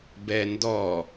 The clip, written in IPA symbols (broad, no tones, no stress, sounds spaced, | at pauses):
b ɛ n d ɔ